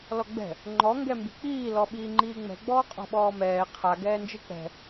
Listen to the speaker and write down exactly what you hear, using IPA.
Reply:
lɔɡ͡bɛ̤ | ŋ͡ǃɔ ŋɡɛmbi̤k͡piː lɔɓiːŋ͡ǃiːŋ͡mɛ̤ ɡ͡bɔːqʼɔ̤ɓɔːmɛː qʰa ɡɛːnd͡ʒɯk͡pɛ̤

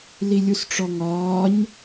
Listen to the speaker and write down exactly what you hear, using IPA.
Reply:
lilʲusʈ͡ʂɔŋɒːɲ

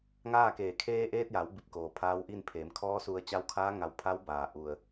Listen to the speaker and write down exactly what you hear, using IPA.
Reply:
ŋaː˥˨keː˧˩ kʰeː˧ʔeː˧t̚ja˩˧w bi˧˩p̚ koː˩pʰaː˧˥wʔi˥˨n pʰeː˩˧mkʰɔː˧˥su˧ə̯ t͡ɕa˧˥wkʰaː˧˥ ŋa˧˩wpʰa˧˥wbaː˩ ʔu˩ə̯

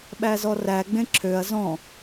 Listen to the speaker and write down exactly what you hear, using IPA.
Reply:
ɓæzɔræ ɡ͡bẽǁʰøɐ̯ zɔ̃

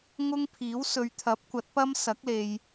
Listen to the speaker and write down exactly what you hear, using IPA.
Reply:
ŋʊ˥ŋ pʰiː˨˥w sɵ˨˧ɥt̪ʰɐ˨˥p̚kʷɐ˨˥t̚pɐ˥m sɐ˨˥k̚le˨j

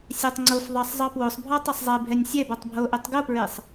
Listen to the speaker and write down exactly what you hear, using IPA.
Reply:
sʲɛtˤŋ͡ǀofðˤɑsˤ zˤɑpwosˤbʱɔ tˤesˤzˤɛbʱɛnʲ sʲɛbɔtˤ bʱoʔetˤ ɡopɹesˤ

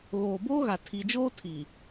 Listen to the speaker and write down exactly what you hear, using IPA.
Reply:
ɣoː˨boː˦ɣa˨ tʰi˨d͡ʒoː˦ tʰi˨

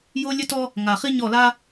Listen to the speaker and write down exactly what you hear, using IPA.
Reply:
jo˦lʲɘ˦tɔ˦ | ŋa˨χi˦ ɲɔ˦˨la˦

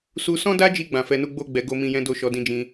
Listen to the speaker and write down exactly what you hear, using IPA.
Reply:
su˧sɔ̃˦da˦d͡ʒi˧ ɡ͡bã˨fɛ˧nu˦ ɡ͡bo˦ɡ͡bɛ˧ ɡo˦ mĩ˧jɛ̃˦do˦˨ʃɔ˨˦ dĩ˧d͡ʒĩ˧

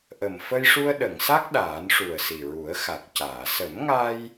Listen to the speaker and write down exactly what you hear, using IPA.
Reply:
ʔə˨˩m fə˧jʂu˧ə̯ɗə˨˩˨ŋsa˦˥k̚ ɗaː˨˩˦nʂu˨˩ə̯si˨˩ ɹu˨˩˦ə̯xa˨˩k̚caː˨˩˨ sə˨˩˦mŋa˧j

